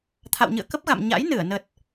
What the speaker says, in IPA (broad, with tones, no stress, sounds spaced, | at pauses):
t̪ʰ a̰˧˨ w ɲ ɨ̰˧˨ ə̯ k ə˦˥ p̚ ɣ a̰˧˨ m ɲ a̰˧˥ j n ɨ˧˩ ə̯ n ə˨˩ t̚